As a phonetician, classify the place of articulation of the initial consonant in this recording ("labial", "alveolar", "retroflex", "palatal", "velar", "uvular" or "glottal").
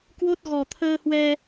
velar